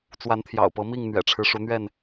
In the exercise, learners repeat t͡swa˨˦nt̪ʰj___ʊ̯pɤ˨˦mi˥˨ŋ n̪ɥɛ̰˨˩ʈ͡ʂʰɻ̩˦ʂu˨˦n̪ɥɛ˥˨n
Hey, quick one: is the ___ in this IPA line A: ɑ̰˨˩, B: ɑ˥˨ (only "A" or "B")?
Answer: A